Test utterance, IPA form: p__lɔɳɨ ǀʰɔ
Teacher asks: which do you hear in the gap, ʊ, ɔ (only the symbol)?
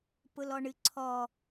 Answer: ʊ